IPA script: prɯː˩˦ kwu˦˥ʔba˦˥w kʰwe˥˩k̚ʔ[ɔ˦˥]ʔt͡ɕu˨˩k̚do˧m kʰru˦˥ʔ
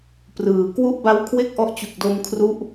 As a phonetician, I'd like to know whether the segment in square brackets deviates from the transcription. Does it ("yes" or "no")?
no